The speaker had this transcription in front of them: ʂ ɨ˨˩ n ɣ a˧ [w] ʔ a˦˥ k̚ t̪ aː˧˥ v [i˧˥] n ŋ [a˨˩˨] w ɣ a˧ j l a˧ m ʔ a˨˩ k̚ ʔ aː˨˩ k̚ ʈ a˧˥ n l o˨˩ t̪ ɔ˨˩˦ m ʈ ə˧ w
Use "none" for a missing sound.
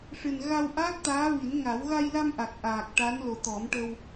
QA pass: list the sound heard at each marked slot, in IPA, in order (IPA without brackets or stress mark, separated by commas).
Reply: w, i˨˩˦, a˨˩˦